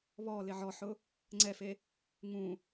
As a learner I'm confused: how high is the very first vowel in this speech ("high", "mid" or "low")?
mid